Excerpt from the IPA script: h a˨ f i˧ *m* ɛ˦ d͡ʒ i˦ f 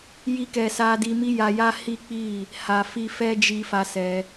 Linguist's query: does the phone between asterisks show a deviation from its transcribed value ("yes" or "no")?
yes